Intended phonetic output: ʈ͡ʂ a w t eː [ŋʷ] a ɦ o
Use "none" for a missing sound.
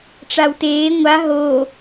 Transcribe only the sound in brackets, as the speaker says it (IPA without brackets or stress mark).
ŋʷ